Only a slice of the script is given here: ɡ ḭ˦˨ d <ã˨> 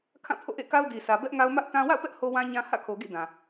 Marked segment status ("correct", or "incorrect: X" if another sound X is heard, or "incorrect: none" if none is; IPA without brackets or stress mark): correct